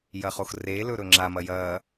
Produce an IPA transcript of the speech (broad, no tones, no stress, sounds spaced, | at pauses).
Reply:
j ɐ χ o x r e l ɵ ɾ ɵ ŋ͡ǁ a m ɐ j ɐː